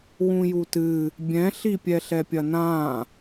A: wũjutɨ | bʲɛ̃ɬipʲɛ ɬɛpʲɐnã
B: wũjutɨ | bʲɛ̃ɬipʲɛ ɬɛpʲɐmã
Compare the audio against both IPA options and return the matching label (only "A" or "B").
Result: A